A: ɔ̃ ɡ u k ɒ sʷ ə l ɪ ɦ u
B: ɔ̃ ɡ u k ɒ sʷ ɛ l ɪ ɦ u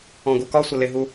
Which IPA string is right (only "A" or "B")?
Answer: A